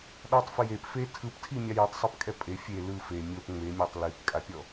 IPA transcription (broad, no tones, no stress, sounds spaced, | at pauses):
ɗ ɔ tˤ f e j e p f e tʰ ɯ p tʰ i mʲ a j o tˤ sˤ ɯ p kʼ ɛ pʼ e fʲ e l ɯ f e mʲ o p ŋ͡m e mʲ a tˤ l i p kʼ a pʲ ɔ